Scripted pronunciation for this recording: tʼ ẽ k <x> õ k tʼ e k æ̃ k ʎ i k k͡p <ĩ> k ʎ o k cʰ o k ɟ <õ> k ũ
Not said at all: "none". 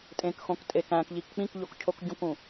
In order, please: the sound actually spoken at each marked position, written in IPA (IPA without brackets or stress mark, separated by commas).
x, ĩ, õ